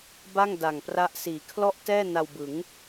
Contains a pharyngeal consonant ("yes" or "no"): no